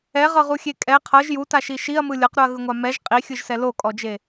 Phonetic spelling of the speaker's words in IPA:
ɛ ʁ ɤ ʁ u xʲ e kʼ ɛ qʰ ɤ ʒ j u t a ʃ i ʃ i ɐ̯ m ɯ lʲ ɤ q ɾ u ɐ̯ ɣ ɯ ŋʷ a m ɛ ʒ qʼ i xʲ ɯ ʒ s ɛ l o kʼ ɔ d͡ʒ e

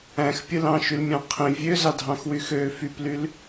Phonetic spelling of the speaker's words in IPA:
æ̃ x pʲ ɯ l ɑ̃ ʃ y l mʲ ɑ̃ qʰ ĩ vʲ ø z ɑ dʱ ɑ̃ x w y x ø f y p l y l

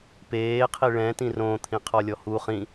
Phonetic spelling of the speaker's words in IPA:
p eː qʰ i ɭ ɛ̃ t ĩ r õ t̪ʰ ĩ qʰ ɔ lʲ ɔ h u χ ĩ

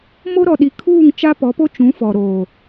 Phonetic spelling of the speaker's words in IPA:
m o˦ ɾ ɔ˨ ɗ i˨ kʰ uː˦˨ ŋ t͡ʃ a˦ p ɔ˨˦ p o˦ t͡ʃ ũ˨˦ f ɔ˨ ɾ oː˨

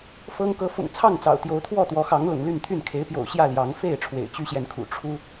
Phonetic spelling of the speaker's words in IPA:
f ɤ˦ ŋ k ɤ˨˦ f ʊ̰˨˩ ŋ t͡sʰ ɑ˥˨ ŋ t͡s ɑ̰˨˩ ʊ̯ t̪ j o˨˦ ʊ̯ t̪ʰ w ɔ˥˨ t̪ w ɔ˨˦ x ɑ˨˦ ŋ l ʊ̰˨˩ ŋ l y˥˨ n t̪ʰ y˥˨ n kʰ e˨˦ ɪ̯ p j o̰˨˩ ʊ̯ ɕ j ä˥˨ l j ɑ˨˦ ŋ f e˥˨ ɪ̯ ʈ͡ʂʰ w ḛ˨˩ ɪ̯ t͡ɕ y˦ ɕ j ɛ˨ n kʰ ṵ˨˩ ʈ͡ʂʰ u˦

